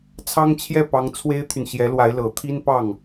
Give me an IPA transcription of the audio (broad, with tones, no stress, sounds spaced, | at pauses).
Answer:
t͡sʰ ɑ˥ ŋ t͡ɕʰ j ɛ˥˩ p ɑ˧˥ ŋ t͡sʰ w e˥ ɪ̯ t̪ʰ y˨ n ɕ j ɛ˧˥ l w a˧˥ ɪ̯ l ɤ˨˩ t̪ʰ i˥ n p ɑ˥˩ ŋ